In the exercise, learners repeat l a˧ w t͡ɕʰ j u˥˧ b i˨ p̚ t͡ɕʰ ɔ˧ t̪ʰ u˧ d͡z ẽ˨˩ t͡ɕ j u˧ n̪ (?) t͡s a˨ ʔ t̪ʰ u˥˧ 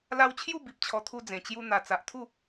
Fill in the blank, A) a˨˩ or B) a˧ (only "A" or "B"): A